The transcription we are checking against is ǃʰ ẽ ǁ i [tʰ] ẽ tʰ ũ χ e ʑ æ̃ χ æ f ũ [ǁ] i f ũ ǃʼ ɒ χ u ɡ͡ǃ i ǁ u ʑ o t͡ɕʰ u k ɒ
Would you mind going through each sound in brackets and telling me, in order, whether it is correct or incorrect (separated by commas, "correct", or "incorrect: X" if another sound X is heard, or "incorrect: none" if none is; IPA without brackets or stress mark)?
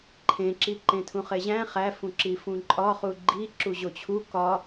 incorrect: ǃ, correct